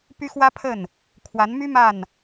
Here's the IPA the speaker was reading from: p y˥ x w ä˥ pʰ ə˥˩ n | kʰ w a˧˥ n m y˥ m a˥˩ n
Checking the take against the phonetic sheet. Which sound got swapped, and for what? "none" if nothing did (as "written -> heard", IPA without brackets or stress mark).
none